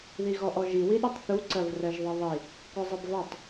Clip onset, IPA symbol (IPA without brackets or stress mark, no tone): ð